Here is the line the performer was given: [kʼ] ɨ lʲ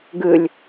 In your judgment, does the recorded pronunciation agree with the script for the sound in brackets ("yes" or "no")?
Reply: no